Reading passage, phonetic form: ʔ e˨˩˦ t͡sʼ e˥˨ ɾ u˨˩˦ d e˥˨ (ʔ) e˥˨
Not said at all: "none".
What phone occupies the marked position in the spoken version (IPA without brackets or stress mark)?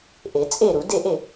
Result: ʔ